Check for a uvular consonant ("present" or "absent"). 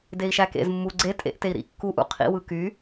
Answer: present